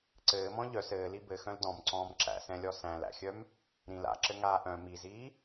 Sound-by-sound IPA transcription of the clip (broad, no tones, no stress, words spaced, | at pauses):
ǀɘːmɔ̃ ʎœs ɘːli bɘxœ̃l dɔ̃mǀɔ̃ːm ǁæ̰sɛ̃lʲɔ sæ̃læ̰xʲœm | ɾĩl a̰ǁɘŋaː ʔœ̃ miziː